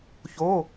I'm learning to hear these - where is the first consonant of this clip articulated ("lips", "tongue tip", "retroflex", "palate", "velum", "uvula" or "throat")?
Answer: palate